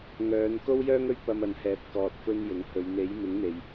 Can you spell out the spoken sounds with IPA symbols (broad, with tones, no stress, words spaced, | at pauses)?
ŋœː˨˧n ko˥wjœː˥ŋɵ˥ɥ pɐ˧mɐ˨nhɛː˨p̚ kɔː˧t̚fɵ˥njʊ˨˥ŋ hɵ˨˧ɥ n̪e˨˥j mɪ˨˥ŋn̪e˨j